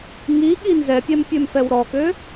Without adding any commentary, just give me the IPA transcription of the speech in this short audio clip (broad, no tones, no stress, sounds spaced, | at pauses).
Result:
ŋ i ɠ i n z ɛ pʲ ɛ m pʲ ø m f ɛ w ɾ ɔ k ø